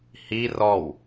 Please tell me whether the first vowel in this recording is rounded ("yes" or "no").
no